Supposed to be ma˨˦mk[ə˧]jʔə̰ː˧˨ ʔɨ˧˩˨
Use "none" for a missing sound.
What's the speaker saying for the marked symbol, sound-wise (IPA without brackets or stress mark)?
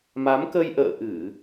ə˧